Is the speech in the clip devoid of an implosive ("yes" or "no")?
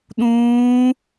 no